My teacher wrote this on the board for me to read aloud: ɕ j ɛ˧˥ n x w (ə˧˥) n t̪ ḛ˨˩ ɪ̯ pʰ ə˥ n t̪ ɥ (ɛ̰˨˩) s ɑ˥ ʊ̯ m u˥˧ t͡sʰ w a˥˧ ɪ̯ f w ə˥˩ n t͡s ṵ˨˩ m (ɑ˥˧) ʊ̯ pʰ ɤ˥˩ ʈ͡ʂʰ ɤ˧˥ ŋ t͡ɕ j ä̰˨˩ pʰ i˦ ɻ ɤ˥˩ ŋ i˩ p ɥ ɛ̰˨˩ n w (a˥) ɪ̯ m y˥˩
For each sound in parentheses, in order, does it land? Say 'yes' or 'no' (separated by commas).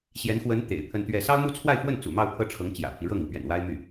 yes, no, yes, yes